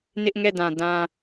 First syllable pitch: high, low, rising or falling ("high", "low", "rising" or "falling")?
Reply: high